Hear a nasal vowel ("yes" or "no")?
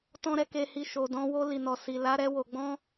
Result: yes